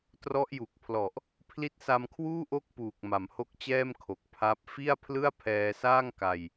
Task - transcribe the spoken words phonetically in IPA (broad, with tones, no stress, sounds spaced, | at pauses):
t r ɔ˦˥ ʔ j u˨˩ k̚ pʰ l ɔ˨˩ ʔ | pʰ l i˦˥ t̚ s a˧ m kʰ w uː˥˩ ʔ o˦˥ k̚ p uː˨˩ k̚ m a˩˦ m h o˦˥ k̚ t͡ɕ ɛː˥˩ m kʰ o˨˩ k̚ pʰ a˦˥ p̚ f i˥˩ a̯ pʰ l ɯ˥˩ a̯ pʰ ɛː˧ s aː˥˩ ŋ k a˧ j